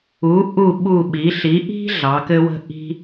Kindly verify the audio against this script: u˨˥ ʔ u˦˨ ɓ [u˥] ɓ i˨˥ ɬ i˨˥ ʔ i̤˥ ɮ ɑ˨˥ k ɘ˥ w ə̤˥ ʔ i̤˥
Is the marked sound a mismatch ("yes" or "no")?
yes